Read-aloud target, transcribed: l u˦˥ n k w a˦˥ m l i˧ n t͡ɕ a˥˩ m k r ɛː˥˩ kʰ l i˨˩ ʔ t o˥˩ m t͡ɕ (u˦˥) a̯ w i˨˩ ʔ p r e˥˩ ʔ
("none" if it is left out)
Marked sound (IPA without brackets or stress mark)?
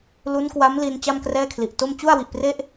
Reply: u˥˩